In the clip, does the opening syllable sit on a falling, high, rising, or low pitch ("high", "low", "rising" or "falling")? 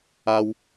high